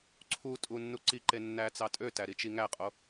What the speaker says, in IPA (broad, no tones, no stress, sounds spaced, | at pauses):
ǀʰ u tʼ u nː u ǀ i ǃ e nː æ t͡s ɑ tʼ ø t æ ɾ i t͡ʃ i ŋ æ qʼ o